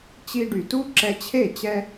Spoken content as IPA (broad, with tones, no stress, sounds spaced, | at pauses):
t͡ɕ i˧ ɖ y˩ t u˥ ǁ ɛ˧ t͡ɕʰ e˥˩ t͡ɕ ɛ˧